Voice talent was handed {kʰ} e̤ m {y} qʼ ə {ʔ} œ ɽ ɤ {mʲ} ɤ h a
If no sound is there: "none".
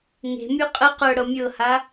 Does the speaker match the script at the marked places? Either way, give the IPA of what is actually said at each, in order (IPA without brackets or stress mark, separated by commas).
ŋ, y, q, mʲ